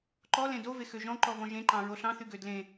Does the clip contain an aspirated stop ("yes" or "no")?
no